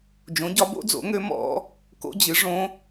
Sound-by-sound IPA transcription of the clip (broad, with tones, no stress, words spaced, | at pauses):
d͡ʒõ˩˥ɟɒ˩˥ bo̰˧˥d͡zo̰˩˥ŋø˧˥ mɔ̰˧˥ | ko̰˧˥d͡ʑɨ˩˥ ʐõ˧˥